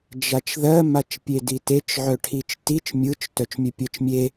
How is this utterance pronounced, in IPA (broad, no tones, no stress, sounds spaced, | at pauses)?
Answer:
d͡ʒ a t͡ʃ ð ɜ m a t͡ʃ pʲ e d i t e t͡ʃ ʕ œ ʈʰ i t͡ʃ t i t͡ʃ mʲ ɯ t͡ʃ t œ t͡ʃ mʲ œ pʲ ɜ t͡ʃ mʲ e